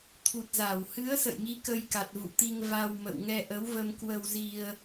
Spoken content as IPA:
t̪ʰ u˨˩ t̚ z a˧˩ w h ɨ˨˦ ə̯ s ə̰˧˨ j ŋ i˨˦ k ə˧ j k a˨˩ t̚ v ṵ˧˨ t̪ i˧ ŋ v a˧ w m ə̰˧˨ w ŋ ɛ˧ ʔ ə˨˦ w v ə˧ m k w ə˧ w z i˧ ə̯

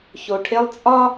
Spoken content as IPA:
ç o˨ ʈʰ e˦ lˠ t͡sʼ ɒ˦

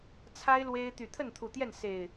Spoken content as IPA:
t͡sʰ a˦ ɪ̯ l w e˦ ɪ̯ t̪ y˨˩ t̪ʰ ə˥˨ n t̪ʰ u˨˩ t̪ j ɛ˥˨ n s e˨˩ ɪ̯

